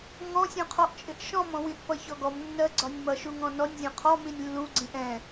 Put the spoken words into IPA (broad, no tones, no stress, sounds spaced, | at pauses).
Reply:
ŋ ɔ̃ sʲ ũ qʰ ɔ ʔ t͡ʃʼ ɪ ʔ ʃ ɔ̃ m ɔ̃ w ĩ ʔ p ʌ ç ɔ ɡ ɔ m nː ɜ ɡ͡ǀ ɒ nʲ m ʌ ʃ u ŋ ɔ̃ n ɔ nʲ zʲ ɔ̃ qʰ ɔ m ĩ nʲ lː u ɡ͡ǀ ĩ ʔ ɛ̃